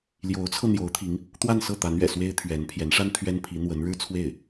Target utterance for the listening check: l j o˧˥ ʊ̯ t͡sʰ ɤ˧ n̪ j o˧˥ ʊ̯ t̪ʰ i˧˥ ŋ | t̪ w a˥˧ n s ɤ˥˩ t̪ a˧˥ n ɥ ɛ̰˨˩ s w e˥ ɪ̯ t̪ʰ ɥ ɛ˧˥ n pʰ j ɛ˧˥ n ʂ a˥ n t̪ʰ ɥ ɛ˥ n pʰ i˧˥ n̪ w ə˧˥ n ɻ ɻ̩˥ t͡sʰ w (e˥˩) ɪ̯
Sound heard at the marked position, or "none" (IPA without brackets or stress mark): e˥˩